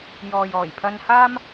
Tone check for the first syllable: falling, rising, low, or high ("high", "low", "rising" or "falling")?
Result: low